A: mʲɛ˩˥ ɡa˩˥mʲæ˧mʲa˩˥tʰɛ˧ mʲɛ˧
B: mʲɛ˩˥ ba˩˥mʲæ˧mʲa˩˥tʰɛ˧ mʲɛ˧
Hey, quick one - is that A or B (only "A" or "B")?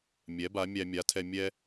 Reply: B